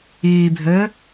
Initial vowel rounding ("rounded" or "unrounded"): unrounded